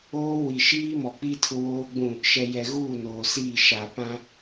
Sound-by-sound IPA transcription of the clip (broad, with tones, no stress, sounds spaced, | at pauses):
oː˦ w i˨ ʃ iː˦ m ɔ˨ k͡p i˦ tʰ ʊ˦ w oː˦ ɡ͡b ũ˦˨ | ʃ ɛ˨ j ɛ˨ ɣ uː˦˨ n oː˨ s iː˦˨ ʃ a˨ p ã˦